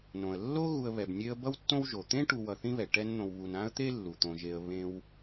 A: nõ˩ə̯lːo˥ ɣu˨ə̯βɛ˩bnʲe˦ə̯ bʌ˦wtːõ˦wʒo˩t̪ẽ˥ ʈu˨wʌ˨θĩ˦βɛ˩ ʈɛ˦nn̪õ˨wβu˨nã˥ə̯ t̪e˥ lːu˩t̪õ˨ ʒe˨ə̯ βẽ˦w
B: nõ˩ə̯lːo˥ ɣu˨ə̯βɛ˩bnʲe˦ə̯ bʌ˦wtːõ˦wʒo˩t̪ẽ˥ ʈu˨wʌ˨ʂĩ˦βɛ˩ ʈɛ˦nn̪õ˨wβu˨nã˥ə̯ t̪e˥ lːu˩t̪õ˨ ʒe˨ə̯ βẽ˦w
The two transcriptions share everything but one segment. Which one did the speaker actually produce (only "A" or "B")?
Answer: A